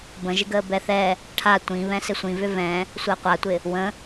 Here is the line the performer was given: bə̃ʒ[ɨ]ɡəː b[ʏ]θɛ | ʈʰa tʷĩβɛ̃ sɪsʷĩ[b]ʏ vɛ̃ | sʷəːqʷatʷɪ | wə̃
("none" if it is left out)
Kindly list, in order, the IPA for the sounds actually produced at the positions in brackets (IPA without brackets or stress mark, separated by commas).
ɪ, ɛ, v